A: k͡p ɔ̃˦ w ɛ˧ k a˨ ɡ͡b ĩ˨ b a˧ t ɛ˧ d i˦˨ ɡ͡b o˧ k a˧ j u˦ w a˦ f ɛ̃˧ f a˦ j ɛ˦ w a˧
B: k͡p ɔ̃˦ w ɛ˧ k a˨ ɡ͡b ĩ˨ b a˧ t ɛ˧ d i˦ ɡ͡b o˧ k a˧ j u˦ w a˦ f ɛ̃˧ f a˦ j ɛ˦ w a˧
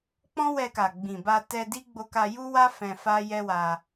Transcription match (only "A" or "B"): B